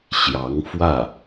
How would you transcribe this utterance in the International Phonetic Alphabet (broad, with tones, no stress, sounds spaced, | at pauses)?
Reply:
ɕ j ɑ˧˥ ŋ f w ä˥˩